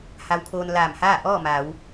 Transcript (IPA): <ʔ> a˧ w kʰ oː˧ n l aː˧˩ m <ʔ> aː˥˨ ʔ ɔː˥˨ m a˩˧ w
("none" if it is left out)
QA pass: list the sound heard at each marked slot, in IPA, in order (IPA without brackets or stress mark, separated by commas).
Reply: h, h